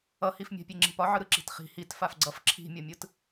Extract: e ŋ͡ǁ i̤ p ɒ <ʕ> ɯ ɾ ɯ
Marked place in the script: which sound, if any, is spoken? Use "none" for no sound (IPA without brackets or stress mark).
ʕ